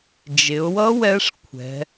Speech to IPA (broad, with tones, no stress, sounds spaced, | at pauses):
d͡ʒ ɪ˩˧ ʊ̯ w ʌ˦˥ w ɛ˦˥ ʂ kʷʰ ɛ̤˩˧